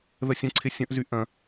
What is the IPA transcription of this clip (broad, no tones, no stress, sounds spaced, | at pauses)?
ð ə sʲ ə̃ ǀʰ ɪ sʲ ə̃ ʔ z y ʔ ɐ̃